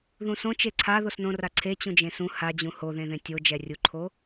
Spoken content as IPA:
ð ũ s õ t͡ʃ e ǀʰ a ð o s n õ r a ǀʰ e t͡ɕ ũ d͡ʒ ẽ s ũ h a d͡ʑ ũ h o ð ẽ ð ẽ tʲ o d͡ʒ ɛ rʲ u ǃʰ o

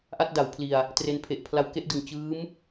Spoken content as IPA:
ʔ a˥˩ t̚ d a˩˦ w pʰ l i˨˩ a̯ | t r e˧ n pʰ e˨˩ ʔ pʰ l a˦˥ w k e˦˥ ʔ d ɯ˨˩ ŋ t͡ɕ ɯː˦˥ m

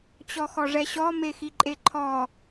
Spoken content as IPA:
t͡ɕ ɔ x ɔ ʐ ɛ ɕ ɔ m e x i ǃʼ e ǃʰ ɔ

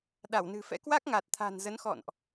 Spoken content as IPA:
ɗ a˧˩ w n ɨ̤˨˩ f ɛ̰˧˥ k w a˦˥ k̚ ŋ a˨˩ t̚ t̪ʰ a̤˨˩ n z ə˨˦ n x ɔ̰˧˨ n ʔ

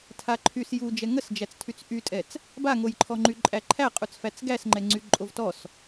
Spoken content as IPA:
tʰ a ǃʰ y s j u d͡ʒ ɛ ŋ ə s d͡ʒ æ t͡s tʰ y t͡s ʔ y tʼ ɛ t͡s | b a ŋ o j ǃʰ ɔ ŋ͡ǃ y ǃʼ æ ǃʰ æ qʼ u t͡s f æ t͡s ɡ æ s ŋ͡ǃ ɛ ŋ͡ǀ y ǃʼ o v t ɔ s

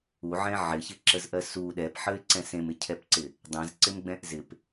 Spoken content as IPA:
u ʕ ɛ̃ ʕ ɪ ç ɪ ǁ ə z ʔ ɜ s u ɗ ɛ p ħ ə ɪ̯ ǀ ɛ̃ s ẽ m ɪ cʰ ɛ p ǀ ɪ | dˤ ɛ̃ z ǀ ɪ m ɡ͡b ɛ̃ ʔ z ɪ p

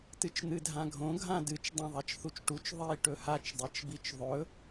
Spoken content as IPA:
t ɨ t͡ʃ n̪ ɨ dʱ ã ɡʱ õ ɡʱ ã d ɨ t͡ʃ dˤ ã ðˤ a t͡ʃ θ u t͡ʃ ʈ u t͡ʃ ðˤ i ʈ ɵ h a t͡ʃ dˤ e t͡ʃ b i t͡ʃ ðˤ ɵ

